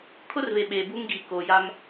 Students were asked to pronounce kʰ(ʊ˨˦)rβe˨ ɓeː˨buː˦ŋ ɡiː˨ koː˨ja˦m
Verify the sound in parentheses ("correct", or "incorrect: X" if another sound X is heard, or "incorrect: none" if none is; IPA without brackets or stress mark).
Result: incorrect: ʊ˦